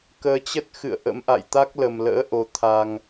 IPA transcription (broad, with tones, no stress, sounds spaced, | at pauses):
k əː˨˦ t͡ɕ ə˦˥ t̚ x ɨ̰˧˨ ə̯ ʔ ə̰˧˥ m ʔ a̰˧˨ j t̪ a˦˥ k̚ l ə˨˩ m l ə̰ː˧˥ ʔ o˨˦ t̪ʰ a˧ ŋ